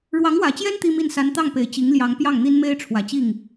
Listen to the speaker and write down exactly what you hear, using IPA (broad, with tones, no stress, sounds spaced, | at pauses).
ɻ w ɑ˧˥ ŋ w ä˨˩ t͡ɕ j ɛ˥ n t̪ i˥ m i˥˩ n s a˧˥ n t̪ ɑ˥˩ ŋ p e˨˩ ɪ̯ t͡ɕ i˧˥ ŋ l j ɑ˧˥ ŋ p j ɑ˥˩ ŋ n̪ i˥ n m e˥ ɪ̯ ʈ͡ʂʰ w ä˨˩ t͡ɕ i˥˩ ŋ